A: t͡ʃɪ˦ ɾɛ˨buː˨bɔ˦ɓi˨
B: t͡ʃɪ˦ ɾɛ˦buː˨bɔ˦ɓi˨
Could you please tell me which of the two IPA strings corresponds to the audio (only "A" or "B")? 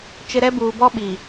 B